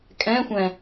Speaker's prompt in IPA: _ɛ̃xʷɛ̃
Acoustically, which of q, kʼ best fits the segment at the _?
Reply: kʼ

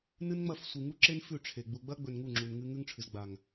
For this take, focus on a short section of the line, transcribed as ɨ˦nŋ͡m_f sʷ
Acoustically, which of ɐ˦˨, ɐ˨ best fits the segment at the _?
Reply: ɐ˦˨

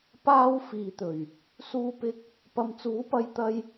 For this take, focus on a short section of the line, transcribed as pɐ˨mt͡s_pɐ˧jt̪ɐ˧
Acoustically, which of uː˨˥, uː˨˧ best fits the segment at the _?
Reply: uː˨˥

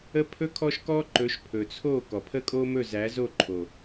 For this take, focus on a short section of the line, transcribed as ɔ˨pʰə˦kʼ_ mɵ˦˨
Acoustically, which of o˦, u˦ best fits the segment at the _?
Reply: o˦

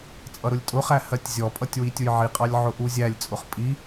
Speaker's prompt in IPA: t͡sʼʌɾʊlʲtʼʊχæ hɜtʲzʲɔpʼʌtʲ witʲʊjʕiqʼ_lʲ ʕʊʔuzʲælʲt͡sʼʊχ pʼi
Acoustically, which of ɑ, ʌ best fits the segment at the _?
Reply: ɑ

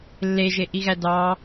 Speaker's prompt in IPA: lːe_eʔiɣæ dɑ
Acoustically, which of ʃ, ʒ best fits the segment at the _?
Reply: ʒ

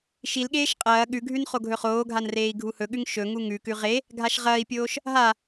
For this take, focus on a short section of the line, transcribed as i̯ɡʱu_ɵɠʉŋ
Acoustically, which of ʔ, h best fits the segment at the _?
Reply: h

